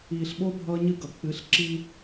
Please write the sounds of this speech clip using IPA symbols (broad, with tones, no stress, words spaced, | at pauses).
iː˨ɬɓo˦ bʱʌː˦ɲɨ˦ɡʌ˨ k͡pɨ˨˦ɬǁi˦